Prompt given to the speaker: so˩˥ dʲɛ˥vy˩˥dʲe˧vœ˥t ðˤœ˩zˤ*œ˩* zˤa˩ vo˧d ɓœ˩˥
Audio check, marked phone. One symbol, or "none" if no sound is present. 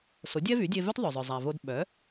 œ˩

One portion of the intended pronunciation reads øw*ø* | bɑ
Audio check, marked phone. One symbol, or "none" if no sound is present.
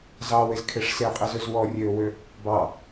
ø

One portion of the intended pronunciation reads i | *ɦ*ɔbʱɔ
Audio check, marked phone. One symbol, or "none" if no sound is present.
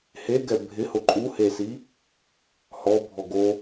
h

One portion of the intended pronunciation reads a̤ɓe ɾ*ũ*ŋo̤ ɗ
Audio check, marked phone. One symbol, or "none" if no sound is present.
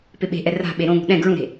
õ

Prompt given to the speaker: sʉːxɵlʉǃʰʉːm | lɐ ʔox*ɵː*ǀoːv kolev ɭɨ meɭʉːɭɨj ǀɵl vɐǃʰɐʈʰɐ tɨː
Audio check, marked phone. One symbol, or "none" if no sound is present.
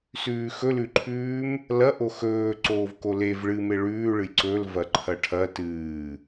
ɵː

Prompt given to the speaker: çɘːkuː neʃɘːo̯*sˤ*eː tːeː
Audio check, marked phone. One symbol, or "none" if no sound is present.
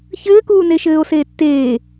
s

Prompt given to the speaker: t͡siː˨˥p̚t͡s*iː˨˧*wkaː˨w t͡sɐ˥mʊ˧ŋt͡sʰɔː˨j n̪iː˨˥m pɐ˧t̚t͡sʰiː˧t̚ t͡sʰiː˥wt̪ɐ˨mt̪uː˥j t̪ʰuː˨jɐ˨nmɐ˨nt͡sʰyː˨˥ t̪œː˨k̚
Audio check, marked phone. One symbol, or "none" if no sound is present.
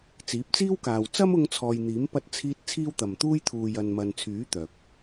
iː˥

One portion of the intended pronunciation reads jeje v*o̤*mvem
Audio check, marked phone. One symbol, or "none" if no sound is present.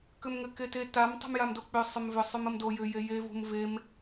ṳ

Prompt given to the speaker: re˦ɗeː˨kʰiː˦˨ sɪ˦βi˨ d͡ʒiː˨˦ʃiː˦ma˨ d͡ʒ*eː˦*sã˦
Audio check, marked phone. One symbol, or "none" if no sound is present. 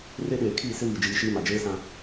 eː˦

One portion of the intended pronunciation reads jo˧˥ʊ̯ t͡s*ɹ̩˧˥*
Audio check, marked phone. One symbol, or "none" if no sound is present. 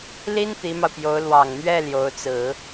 ɹ̩˨˩˦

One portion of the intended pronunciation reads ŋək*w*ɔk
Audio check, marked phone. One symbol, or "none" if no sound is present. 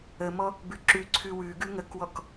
w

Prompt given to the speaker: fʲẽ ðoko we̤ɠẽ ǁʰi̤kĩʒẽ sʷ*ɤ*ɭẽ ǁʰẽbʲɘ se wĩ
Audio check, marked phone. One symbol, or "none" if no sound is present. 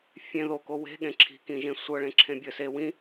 ɤ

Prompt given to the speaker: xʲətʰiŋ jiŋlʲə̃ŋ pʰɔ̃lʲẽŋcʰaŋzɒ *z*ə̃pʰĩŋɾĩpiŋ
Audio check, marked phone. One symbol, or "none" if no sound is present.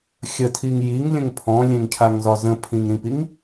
z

